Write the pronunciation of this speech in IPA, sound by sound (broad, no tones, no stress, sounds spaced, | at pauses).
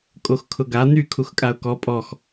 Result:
kʼ o x kʰ ʊ ɡ a n̪ y kʰ u x kʼ a ʊ̯ k ɔ pʼ ɔ x